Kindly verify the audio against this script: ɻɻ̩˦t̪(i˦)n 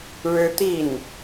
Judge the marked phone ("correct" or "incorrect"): incorrect